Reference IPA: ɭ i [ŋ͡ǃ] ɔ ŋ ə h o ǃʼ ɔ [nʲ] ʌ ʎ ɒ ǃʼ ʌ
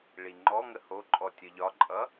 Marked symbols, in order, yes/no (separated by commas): yes, no